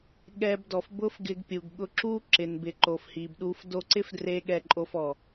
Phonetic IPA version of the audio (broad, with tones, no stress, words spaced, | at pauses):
ɠɛ˧bdɔ˨f bʊ˦fɡɪ˧ɡpʲu˨ɡɠʊ˧ ǁu˦ǁɪ˨nbɪ˨ ǃo˨fhi˨bɗu˧f do˧ǀɪ˦fdre˧ ɠɛ˧ǃʼo˧fɔ˨